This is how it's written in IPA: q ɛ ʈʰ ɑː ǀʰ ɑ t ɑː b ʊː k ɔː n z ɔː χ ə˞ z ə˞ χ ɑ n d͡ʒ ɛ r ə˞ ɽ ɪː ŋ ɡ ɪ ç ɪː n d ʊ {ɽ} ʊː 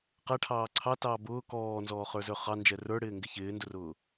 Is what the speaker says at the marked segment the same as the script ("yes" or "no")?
no